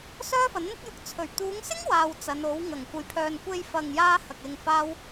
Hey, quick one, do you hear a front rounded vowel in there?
yes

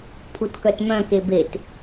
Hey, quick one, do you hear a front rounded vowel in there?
yes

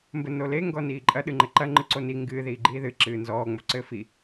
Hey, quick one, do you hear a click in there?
yes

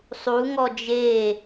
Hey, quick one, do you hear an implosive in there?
no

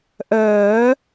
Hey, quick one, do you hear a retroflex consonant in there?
no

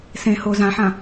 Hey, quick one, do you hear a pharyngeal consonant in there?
yes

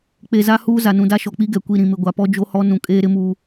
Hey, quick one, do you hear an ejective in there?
yes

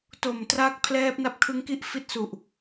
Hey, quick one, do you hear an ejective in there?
no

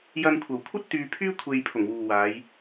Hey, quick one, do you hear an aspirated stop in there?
yes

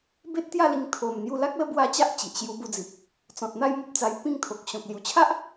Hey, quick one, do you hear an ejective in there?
no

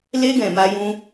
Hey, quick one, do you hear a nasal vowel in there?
yes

